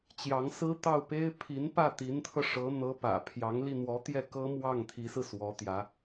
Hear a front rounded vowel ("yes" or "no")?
no